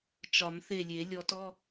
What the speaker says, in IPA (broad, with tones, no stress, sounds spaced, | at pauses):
t͡ʃ ɒ˨˩˦ m θ e˧˩ lʲ e˨˩˦ lʲ ɔ˨˩˦ t ɔ˧˥˧